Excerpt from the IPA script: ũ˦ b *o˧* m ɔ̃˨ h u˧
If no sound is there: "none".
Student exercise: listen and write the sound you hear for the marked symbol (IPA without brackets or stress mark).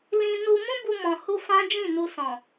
u˧